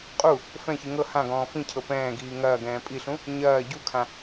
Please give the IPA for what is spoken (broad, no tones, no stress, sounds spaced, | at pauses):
qʼ u | f ɛ̃ ç i ŋ ɤ h ã ɡ ɔ̃ː f ĩ cʰ ɤ p ɛ̃ː ɡ iː ŋ ɐː ɡ ɛ̃ː pʼ i ɬ ũ | ɲ ɐː ɟ u kʰ ã